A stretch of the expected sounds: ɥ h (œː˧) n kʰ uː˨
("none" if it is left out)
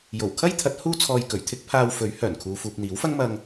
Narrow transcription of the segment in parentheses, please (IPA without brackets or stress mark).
œː˨˩